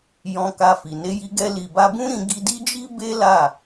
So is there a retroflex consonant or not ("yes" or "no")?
no